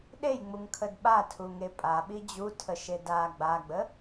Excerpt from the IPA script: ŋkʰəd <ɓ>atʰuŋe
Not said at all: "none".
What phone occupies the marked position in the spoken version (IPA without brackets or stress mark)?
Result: ɓ